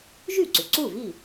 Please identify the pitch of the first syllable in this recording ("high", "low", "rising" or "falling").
falling